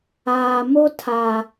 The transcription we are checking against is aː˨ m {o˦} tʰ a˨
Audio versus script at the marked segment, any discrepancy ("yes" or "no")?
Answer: no